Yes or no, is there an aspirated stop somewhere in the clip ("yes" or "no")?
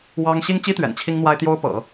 yes